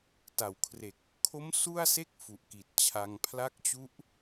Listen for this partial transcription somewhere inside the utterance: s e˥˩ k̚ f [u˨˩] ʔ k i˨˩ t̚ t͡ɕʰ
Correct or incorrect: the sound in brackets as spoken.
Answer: correct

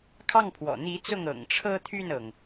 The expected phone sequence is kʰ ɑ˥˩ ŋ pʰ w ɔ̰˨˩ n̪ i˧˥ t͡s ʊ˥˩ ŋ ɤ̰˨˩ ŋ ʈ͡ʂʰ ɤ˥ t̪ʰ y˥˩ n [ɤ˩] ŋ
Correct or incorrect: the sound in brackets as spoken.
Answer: correct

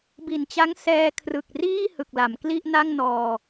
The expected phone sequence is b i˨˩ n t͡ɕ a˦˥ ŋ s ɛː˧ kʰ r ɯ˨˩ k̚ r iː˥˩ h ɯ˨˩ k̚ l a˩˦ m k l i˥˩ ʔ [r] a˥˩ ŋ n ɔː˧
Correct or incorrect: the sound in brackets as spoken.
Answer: incorrect: n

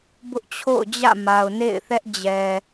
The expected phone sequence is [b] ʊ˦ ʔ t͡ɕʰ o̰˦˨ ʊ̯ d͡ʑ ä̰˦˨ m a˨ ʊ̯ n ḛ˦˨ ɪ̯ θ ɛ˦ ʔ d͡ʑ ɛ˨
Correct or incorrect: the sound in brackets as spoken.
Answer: correct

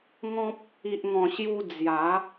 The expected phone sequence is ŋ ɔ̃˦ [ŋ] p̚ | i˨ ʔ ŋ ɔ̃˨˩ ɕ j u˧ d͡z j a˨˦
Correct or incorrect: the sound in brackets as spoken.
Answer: incorrect: none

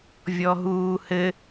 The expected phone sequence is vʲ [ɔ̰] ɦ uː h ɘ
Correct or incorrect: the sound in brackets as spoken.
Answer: incorrect: ɔ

